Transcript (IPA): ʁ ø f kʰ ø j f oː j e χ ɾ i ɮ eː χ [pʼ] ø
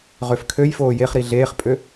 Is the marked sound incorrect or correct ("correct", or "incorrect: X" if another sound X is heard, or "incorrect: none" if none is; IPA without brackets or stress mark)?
correct